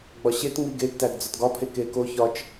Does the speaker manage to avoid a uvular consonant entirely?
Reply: yes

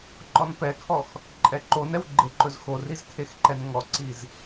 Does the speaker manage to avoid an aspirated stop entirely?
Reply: no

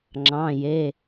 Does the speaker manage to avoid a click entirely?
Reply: no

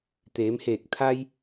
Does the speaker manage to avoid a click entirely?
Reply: yes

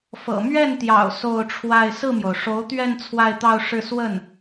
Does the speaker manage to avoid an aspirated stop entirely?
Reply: no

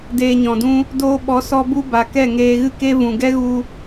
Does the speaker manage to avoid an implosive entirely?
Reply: no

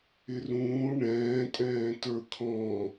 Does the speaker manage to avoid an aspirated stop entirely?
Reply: no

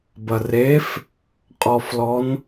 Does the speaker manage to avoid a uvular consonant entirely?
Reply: no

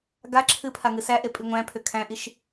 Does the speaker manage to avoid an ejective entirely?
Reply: no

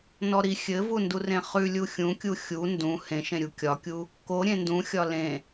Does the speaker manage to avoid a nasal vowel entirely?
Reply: no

